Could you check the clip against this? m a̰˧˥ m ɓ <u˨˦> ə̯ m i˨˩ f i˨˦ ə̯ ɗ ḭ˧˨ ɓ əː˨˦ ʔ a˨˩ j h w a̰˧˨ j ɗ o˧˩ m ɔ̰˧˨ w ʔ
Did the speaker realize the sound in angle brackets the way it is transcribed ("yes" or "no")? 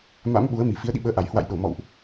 yes